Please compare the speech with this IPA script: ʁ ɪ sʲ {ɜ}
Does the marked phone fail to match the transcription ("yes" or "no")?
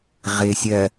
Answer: no